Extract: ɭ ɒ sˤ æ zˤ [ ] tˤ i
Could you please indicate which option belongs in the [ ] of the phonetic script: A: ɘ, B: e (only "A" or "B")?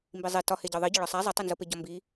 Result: B